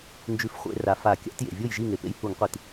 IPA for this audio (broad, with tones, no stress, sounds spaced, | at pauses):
n d͡ʒ ʉ˨˥ f χʷ ḛ˧˩˧ r a˩ f a˧˩˧ kʲ a̰˨˥ t j ḛ˩ vʲ o˥˩ j ʒ i˥˩ ŋ e˩ p ḛ˨˥ j h u˧˩˧ ŋ qʷ i˧˩˧ t